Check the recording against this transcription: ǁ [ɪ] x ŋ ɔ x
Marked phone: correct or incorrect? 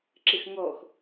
correct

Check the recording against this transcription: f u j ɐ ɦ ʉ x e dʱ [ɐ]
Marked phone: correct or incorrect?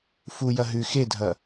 correct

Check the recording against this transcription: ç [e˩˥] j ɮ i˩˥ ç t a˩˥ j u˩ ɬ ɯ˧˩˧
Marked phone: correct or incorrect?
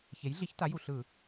correct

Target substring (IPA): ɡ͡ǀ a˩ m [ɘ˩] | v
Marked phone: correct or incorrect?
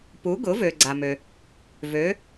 incorrect: ø˩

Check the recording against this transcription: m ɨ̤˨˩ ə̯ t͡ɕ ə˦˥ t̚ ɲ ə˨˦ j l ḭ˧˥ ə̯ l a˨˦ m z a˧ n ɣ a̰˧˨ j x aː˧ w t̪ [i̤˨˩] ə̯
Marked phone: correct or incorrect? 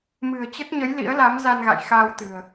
incorrect: ɨ̤˨˩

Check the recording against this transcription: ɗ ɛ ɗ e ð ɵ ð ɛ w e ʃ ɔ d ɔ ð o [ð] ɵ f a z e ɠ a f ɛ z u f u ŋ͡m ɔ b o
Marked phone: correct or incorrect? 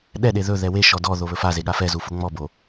incorrect: β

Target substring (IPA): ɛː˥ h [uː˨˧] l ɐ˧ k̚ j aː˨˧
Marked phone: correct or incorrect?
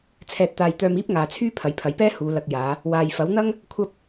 correct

